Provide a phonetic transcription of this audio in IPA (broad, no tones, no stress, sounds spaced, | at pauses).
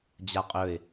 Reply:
d͡ʑ a qʼ ɵ ɪ̯